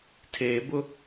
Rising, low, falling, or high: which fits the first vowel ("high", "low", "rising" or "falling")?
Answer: low